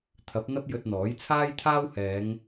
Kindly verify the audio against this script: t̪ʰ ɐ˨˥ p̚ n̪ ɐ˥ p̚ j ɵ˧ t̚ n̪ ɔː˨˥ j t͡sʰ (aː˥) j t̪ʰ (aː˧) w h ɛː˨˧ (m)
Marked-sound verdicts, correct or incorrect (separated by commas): correct, incorrect, incorrect